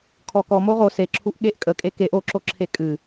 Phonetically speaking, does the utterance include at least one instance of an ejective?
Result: yes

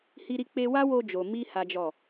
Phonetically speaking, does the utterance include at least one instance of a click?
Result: no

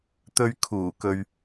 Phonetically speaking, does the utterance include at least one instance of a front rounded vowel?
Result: no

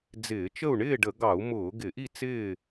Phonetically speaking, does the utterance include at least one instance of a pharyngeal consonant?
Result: no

